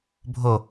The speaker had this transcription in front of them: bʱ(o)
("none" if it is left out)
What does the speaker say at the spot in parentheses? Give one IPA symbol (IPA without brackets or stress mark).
o